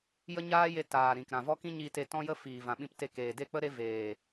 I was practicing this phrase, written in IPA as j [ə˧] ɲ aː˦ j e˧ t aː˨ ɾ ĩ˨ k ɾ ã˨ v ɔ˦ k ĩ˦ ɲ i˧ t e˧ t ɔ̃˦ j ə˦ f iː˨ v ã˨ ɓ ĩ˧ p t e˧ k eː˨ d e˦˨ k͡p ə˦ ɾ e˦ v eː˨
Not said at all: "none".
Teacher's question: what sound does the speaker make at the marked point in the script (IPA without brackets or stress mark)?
ə˦